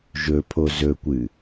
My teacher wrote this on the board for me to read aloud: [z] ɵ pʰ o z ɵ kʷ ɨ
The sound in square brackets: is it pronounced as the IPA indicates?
no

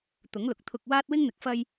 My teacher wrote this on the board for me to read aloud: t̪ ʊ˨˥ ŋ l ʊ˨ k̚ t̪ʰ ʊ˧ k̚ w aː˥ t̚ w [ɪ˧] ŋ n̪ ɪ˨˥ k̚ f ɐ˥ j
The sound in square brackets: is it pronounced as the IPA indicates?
no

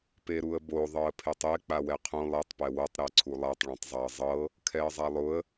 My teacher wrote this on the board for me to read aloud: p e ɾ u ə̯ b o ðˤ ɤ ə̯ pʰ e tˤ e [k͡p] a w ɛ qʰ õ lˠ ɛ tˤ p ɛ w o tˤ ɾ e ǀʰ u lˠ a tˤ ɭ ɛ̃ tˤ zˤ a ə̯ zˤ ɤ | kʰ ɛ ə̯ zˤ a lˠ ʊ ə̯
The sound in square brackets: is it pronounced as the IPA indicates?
yes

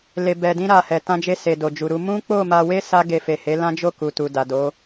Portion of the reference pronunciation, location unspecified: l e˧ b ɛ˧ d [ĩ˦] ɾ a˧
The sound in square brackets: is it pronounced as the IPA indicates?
yes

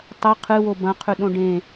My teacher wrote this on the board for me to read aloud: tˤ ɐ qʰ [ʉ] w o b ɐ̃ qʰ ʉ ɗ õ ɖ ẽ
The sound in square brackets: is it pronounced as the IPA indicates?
no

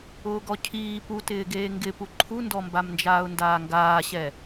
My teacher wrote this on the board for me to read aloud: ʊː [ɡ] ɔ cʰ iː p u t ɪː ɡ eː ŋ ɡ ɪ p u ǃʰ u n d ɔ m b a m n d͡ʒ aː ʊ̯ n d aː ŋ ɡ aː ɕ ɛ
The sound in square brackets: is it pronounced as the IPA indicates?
yes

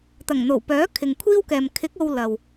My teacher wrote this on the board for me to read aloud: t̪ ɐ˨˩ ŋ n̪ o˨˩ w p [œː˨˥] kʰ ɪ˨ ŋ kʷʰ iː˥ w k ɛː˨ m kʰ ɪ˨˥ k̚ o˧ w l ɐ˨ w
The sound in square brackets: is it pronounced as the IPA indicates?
yes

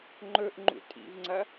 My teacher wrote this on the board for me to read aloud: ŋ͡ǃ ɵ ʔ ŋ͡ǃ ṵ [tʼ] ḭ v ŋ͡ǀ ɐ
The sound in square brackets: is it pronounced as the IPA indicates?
yes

